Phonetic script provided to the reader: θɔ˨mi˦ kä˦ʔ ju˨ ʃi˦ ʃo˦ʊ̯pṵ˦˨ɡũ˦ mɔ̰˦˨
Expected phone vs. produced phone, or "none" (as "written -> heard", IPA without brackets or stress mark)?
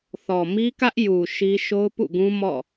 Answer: none